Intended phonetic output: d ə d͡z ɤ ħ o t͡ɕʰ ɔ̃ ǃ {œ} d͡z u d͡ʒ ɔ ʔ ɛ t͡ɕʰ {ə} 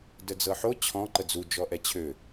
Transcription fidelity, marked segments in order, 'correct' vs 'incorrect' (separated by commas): incorrect, incorrect